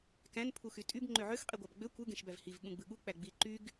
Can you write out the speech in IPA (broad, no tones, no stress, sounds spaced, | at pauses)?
k æ̃ n pʰ u x y tʼ y b ŋ͡ǃ ø ʕ ø x qʼ i ɡʷ ɑ b ɡ͡b ø kʷ ɯ ɡ ẽ ʃ b æ v h i v ɠ ũ ɡ͡b ɯ ɠ u k͡p æ ɡ͡b i ǃ y ɡ